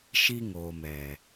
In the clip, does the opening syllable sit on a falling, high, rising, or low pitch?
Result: high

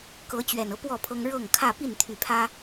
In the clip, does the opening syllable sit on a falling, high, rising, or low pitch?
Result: rising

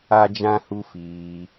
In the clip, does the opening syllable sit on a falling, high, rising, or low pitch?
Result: high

